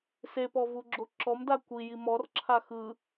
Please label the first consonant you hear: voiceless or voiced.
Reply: voiceless